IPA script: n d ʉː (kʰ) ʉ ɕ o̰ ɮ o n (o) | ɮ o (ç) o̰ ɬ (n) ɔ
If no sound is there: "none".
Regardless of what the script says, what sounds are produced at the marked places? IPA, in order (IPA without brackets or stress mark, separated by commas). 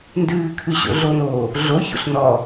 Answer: kʰ, oː, ç, n